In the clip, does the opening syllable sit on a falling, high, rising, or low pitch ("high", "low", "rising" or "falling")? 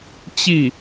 falling